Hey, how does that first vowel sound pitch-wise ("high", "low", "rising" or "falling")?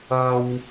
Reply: low